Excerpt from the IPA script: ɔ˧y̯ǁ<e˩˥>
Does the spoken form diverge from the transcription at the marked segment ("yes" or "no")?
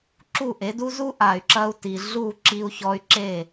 yes